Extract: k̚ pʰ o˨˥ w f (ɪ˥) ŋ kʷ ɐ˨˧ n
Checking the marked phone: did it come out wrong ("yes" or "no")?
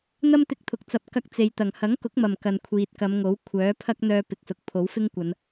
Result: no